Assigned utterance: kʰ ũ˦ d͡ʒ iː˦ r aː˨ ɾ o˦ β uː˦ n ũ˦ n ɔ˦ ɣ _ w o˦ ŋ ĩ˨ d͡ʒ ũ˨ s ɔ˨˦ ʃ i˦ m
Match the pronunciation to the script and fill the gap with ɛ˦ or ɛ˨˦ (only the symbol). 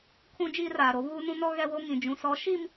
ɛ˦